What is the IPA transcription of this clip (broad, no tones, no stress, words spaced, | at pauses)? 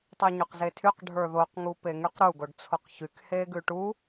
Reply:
tˤyɲʉqzetʰyq ɖʱə˞ðoq ŋupeŋyqɾu ɡoɖt͡sʰoqçyk heɡʉʈu